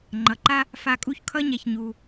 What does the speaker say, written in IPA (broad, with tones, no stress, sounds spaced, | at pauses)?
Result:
ŋ͡ǃ ʌ˩ ǃ a˥ | f a˧ kʼ u˥ ç kʰ ʌ˥ ɲ ɛ˩ ç ɲ u˩